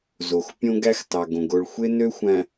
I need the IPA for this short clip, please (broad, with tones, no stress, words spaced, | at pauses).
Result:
zo˨x pʲõ˦ɡæ˦x tɑ˨ɡõ˨ ɡo˨ɭxʷe˦nø˦xʷæ̃˨